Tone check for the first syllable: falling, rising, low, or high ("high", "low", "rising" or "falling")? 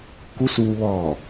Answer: rising